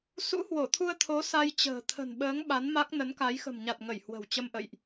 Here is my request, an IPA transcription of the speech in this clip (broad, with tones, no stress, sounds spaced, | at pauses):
s ṵ˧˥ h w o˧˩ t̪ʰ u˧ ə̯ t̪ʰ o˨˦ s a˧ j t͡ɕ ə̤ː˨˩ t̪ʰ ə̤˨˩ n ɓ əː˨˦ ŋ ɓ a˨˦ n m a˦˥ k̚ n ə˨˦ n k a˨˦ j x ə̤˨˩ m ɲ a˨˩ t̚ ŋ ə˧˩ j h w ə̤˨˩ w t͡ɕ ə˧ m ʔ ə̰˧˨ j ʔ